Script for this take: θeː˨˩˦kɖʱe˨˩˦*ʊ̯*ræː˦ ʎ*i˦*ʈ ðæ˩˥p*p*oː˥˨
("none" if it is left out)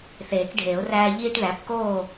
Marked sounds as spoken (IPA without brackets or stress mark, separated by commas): ʊ̯, iː˦, k